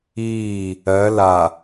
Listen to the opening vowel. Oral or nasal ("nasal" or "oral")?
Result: oral